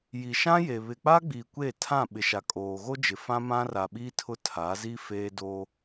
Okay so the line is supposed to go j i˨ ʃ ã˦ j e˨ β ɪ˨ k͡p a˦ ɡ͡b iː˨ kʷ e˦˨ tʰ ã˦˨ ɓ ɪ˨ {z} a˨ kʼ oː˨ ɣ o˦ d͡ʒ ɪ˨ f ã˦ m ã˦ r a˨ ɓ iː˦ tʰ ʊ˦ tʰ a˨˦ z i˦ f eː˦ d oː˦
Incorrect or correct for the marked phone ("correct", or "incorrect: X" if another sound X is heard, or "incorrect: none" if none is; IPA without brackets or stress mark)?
incorrect: ʃ